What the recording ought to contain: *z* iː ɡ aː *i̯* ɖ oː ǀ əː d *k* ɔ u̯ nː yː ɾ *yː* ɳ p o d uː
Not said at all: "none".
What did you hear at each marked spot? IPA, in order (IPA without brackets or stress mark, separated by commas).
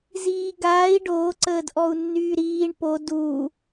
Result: z, i̯, ʔ, iː